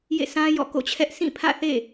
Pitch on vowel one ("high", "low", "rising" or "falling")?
falling